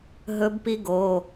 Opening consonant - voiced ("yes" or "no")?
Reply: yes